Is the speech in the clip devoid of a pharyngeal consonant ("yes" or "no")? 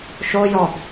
yes